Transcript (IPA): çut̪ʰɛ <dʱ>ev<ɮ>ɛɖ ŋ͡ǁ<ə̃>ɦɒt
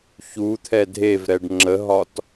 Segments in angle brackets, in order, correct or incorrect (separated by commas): correct, incorrect, incorrect